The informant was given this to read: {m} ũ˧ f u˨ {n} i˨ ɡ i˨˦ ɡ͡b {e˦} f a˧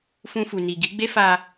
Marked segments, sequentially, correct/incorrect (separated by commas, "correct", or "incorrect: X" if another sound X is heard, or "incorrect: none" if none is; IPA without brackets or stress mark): incorrect: f, correct, correct